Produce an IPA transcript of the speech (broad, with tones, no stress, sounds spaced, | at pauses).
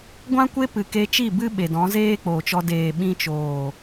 ɡʷ ã˦ kʷ e˦ p ɨ˨ k e˧ t͡ʃ i˦˨ b ɨ˦ ɓ e˨ d ɔ̃˨˦ z eː˦ k͡p oː˨ t͡ʃ ɔ˧ d eː˨ ɓ ĩ˧ t͡ʃ oː˨